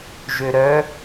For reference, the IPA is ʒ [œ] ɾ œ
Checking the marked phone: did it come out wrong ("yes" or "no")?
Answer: yes